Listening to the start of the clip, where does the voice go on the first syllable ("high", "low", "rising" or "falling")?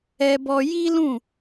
high